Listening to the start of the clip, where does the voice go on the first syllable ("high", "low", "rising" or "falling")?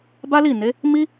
high